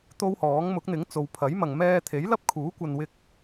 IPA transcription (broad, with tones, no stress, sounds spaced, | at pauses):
t̪ o˥ w h ɔː˨˥ ŋ m ʊ˨˥ k̚ n̪ ɪ˨˥ ŋ t͡s o˨˧ w pʰ ɐ˨˥ j m ɐ˨ ŋ m ɛː˧ t̪ʰ e˨˥ j l ɐ˥ p̚ kʰ uː˨˥ kʷ ɐ˨ n w ɪ˧ k̚